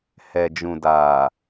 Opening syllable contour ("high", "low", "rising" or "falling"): low